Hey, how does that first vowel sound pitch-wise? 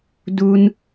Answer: high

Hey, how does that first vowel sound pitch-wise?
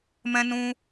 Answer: high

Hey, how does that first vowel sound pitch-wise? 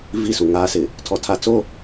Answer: falling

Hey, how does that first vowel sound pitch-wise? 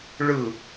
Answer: falling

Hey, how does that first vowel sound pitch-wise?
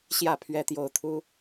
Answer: falling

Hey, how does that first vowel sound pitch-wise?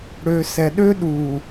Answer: low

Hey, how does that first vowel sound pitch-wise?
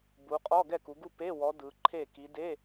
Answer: rising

